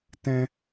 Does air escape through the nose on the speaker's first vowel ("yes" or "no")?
yes